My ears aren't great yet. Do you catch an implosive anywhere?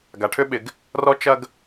yes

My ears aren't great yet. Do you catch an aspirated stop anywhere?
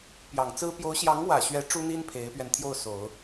yes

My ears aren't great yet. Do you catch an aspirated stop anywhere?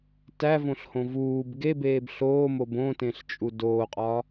no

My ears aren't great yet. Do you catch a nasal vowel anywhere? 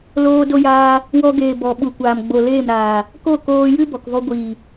no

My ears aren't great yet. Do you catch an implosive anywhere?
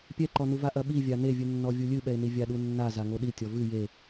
yes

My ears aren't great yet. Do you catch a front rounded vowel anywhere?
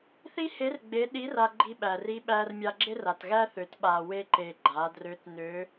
yes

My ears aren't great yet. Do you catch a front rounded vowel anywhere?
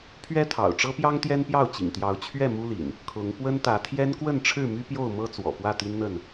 yes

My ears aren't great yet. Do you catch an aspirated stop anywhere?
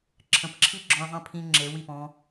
yes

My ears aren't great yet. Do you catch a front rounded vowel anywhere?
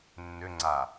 yes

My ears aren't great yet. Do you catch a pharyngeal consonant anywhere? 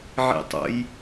yes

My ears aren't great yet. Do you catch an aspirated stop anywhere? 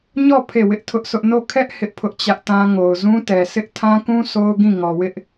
yes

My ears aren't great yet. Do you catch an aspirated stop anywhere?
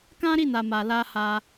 no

